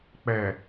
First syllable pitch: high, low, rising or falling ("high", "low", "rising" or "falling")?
low